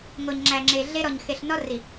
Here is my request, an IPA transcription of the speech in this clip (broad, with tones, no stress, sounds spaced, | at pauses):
ŋ o˨ ɲ ŋ͡ǁ æ˨ ŋ͡ǁ e˨ ɮ e˦ ɾ ɔ˨ ɲ x e˨ ɬ n ɔ˦ r i˨